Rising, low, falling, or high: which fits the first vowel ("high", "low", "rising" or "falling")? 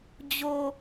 low